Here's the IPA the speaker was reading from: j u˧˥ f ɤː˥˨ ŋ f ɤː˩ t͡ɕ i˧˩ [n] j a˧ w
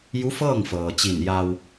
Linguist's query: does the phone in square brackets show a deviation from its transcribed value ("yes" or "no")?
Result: no